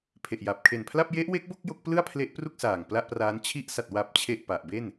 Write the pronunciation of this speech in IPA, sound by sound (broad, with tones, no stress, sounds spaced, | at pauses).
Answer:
pʰ e˨˩ ʔ j a˨˩ p̚ kʰ e˨˩ n pʰ l a˥˩ p̚ j e˦˥ ʔ w e˦˥ k̚ b o˥˩ k̚ j o˦˥ k̚ p l ɯ˥˩ a̯ pʰ l e˦˥ ʔ p r u˥˩ k̚ s aː˨˩ ŋ p l a˥˩ ʔ p r aː˦˥ n t͡ɕʰ i˦˥ ʔ s a˨˩ t̚ w a˨˩ p̚ t͡ɕʰ e˨˩ ʔ p a˨˩ ʔ b e˥˩ n